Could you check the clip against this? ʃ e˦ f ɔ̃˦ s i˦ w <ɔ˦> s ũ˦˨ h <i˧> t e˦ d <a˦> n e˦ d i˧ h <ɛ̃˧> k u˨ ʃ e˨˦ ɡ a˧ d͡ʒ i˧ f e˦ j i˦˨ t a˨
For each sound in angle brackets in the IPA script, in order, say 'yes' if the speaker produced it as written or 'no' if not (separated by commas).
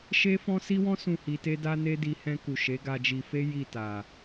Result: no, yes, yes, yes